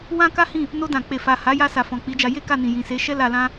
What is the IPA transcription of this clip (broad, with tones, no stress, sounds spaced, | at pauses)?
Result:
w ã˦ k a˦ h ĩ˦˨ | n o˧ d ã˨ k͡p e˨ f a˨ h a˨˦ j a˧ s a˨ f ɔ̃˨ k͡p i˨˦ d͡ʒ a˧ j e˦ k a˦˨ n ĩ˨ j ĩ˨ s e˨˦ ʃ ɛ˦ l a˧ l ã˦